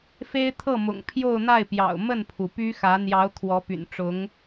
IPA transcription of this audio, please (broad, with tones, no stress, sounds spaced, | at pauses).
f e˥ ɪ̯ t̪ʰ ɤ˥˩ m ʊ̰˨˩ ŋ pʰ j o˥˧ ʊ̯ n̪ a˥˩ ɪ̯ p j ɑ̰˨˩ ʊ̯ m ə˥˩ n pʰ u˩ p y˥ x ä˧˥ n̪ j ɑ˧˥ ʊ̯ kʰ w ɔ˧˥ p y̰˨˩ n ʈ͡ʂ ʊ˧˥ ŋ